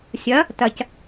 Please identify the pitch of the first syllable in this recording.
rising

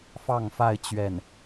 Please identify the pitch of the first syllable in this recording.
falling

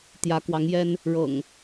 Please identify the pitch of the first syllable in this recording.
rising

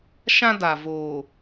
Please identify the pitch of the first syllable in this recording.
high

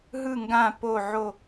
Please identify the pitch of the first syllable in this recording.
falling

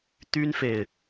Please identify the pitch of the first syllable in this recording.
high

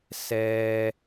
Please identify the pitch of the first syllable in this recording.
high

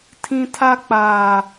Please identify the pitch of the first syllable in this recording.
high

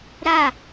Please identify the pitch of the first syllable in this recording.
falling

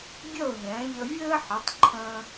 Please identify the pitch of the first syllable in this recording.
falling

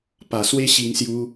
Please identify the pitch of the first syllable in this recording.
low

